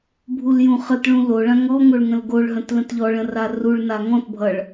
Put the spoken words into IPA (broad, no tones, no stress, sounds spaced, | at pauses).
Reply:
bʱ u l j ũ χ ə t ɭ ũ l o ɭ ã ŋ ɔ ŋ o ɭ ŋ ə̃ l ɡ o ɭ ɦ ə̃ t l ə̃ t ʎ ɔ ɭ ə̃ r a r u ɭ n a ŋ ɔ̃ t bʱ ʌ ɭ